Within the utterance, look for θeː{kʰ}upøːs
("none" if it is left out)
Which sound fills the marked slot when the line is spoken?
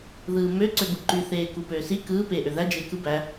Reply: k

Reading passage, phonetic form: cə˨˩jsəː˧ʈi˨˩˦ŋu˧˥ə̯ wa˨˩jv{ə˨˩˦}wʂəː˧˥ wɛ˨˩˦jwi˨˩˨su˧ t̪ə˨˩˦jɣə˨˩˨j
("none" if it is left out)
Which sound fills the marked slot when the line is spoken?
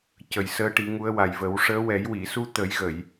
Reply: ə˨˩˦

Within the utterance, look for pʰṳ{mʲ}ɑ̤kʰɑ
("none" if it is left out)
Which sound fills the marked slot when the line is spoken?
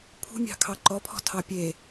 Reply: mʲ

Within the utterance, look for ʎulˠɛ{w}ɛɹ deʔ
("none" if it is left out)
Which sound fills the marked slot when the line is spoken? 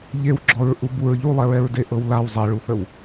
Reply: ɹ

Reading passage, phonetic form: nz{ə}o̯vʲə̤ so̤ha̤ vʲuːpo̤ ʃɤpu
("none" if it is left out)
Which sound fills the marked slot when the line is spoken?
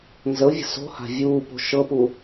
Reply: ə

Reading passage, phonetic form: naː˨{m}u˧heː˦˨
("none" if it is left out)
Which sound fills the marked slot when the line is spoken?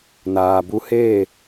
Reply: b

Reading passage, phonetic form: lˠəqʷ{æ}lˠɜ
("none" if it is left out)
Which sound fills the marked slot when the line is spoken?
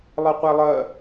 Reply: æ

